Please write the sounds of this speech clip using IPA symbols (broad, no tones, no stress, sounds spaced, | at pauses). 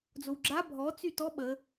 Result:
d͡z o w ɡ͡ǁ a bʱ ɔ t͡s y t ɔ ɓ ə